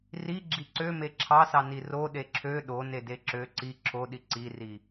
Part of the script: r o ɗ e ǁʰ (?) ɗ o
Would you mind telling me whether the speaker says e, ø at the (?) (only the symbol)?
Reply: ø